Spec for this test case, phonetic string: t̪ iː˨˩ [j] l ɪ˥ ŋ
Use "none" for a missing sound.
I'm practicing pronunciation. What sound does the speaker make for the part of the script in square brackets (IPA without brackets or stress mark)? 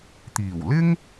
w